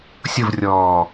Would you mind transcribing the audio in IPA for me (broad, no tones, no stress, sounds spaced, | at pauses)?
sʲ ʊ v rʲ ɔː